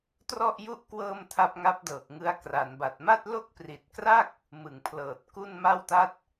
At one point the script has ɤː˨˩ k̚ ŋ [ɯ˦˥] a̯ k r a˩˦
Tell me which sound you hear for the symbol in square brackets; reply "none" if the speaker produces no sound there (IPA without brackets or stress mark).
ɯ˦˥